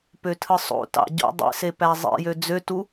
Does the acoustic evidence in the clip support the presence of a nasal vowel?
no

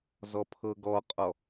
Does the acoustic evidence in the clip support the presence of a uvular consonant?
yes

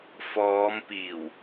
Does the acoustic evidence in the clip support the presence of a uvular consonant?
no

